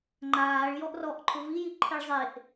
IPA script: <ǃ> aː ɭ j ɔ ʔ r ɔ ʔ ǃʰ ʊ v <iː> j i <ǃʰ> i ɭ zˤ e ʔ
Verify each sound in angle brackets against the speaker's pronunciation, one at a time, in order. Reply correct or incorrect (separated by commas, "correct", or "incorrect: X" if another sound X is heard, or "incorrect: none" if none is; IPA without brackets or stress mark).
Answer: incorrect: ŋ͡ǃ, incorrect: i, correct